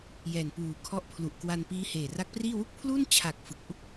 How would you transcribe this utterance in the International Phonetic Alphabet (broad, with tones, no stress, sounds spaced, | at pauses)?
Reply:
j ɛː˨˩ n p uː˨˩ kʰ ɔ˦˥ ʔ pʰ l u˨˩ ʔ k w a˧ n p iː˦˥ h eː˨˩ r a˦˥ k̚ p r iː˥˩ w u˥˩ k̚ pʰ l uː˥˩ n t͡ɕʰ a˨˩ k̚ f ɯ˨˩ k̚ ʔ u˥˩ k̚